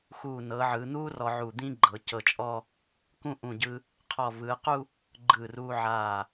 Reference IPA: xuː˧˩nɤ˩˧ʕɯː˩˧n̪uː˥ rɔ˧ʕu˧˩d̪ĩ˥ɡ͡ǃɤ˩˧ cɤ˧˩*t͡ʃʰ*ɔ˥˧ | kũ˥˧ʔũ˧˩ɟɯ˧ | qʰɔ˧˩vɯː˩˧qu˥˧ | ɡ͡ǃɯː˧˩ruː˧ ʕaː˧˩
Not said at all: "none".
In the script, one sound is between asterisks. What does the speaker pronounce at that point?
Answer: t͡ʃʼ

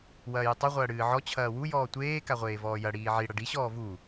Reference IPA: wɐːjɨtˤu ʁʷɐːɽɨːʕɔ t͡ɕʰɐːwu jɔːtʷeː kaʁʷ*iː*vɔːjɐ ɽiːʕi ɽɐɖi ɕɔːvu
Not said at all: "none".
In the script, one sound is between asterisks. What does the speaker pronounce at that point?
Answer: eː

